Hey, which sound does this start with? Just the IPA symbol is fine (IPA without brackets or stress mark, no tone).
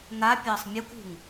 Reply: n̪